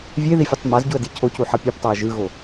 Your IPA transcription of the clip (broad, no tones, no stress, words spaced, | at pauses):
vʲeði fʲɯtˤmazɟuə̯ dicʰocu ħʌpʲoptˤaə̯ ʒɯɣo